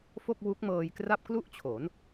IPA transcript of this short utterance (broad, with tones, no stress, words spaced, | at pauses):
fo˥˩k̚wu˦˥k̚mɤː˧jkra˥˩p̚ klu˥˩ʔt͡ɕʰo˩˦n